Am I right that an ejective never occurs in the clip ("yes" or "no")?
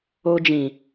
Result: yes